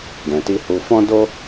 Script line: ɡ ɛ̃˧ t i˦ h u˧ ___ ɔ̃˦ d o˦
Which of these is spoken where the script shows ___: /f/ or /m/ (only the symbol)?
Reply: f